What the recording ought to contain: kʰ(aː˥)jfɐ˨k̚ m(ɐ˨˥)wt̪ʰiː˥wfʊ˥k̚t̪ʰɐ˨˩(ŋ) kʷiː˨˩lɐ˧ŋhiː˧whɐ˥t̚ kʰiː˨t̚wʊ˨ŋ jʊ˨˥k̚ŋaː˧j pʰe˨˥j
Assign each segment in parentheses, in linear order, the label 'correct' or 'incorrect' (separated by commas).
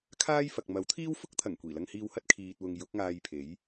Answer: correct, correct, correct